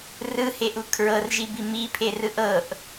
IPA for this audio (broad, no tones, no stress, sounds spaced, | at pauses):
r ɯ h e ʔ u kʰ ɹ ɤ r ʒ i b i m i pʰ e r ɯ ʔ ɤ ʔ